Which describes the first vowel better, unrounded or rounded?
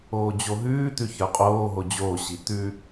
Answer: rounded